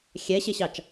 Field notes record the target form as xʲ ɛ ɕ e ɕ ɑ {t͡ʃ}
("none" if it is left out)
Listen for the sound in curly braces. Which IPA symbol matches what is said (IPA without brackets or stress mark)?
t͡ʃ